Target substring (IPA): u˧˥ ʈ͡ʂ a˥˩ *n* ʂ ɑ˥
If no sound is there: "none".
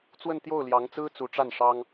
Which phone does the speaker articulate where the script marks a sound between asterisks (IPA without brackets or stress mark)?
n